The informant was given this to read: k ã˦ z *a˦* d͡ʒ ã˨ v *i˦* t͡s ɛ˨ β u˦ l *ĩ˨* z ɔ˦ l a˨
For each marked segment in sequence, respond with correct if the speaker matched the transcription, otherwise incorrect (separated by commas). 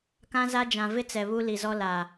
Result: correct, incorrect, incorrect